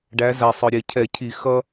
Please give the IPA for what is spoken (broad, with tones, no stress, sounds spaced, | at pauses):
ɖ æ˩˧ z æ˩ sˤ ə˞˩ ɾʲ ɛ˧˩˧ cʰ ɛ˧˩˧ cʰ i˧˩˧ x ʌ˦